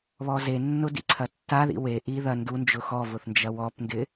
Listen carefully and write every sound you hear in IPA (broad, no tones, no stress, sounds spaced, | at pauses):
β ɔ z e nː ʊ d ḭ ǀʰ ɐ tː a ð ḭ w e ʔ i ð ɐ n d u n d͡ʒ ʊ x ɔ v ʊ θ n d͡ʒ ɐ w ɔ p n d ɪ